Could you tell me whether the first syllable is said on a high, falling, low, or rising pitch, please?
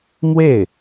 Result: falling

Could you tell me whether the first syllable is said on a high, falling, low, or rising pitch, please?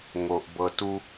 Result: low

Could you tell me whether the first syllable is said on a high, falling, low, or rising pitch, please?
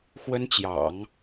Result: high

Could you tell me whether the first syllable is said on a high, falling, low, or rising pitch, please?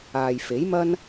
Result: low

